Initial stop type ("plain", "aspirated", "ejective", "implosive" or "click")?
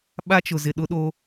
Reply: implosive